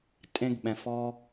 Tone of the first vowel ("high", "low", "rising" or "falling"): high